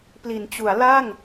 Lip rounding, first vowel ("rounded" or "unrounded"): unrounded